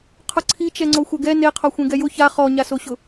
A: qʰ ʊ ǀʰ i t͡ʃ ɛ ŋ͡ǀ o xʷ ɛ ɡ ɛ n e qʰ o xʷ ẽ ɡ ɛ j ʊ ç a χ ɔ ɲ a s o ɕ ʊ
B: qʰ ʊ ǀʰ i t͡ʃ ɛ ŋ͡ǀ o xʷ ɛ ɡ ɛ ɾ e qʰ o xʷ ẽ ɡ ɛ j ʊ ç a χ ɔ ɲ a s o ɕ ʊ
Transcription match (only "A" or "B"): A